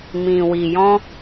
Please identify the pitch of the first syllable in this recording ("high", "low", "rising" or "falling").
low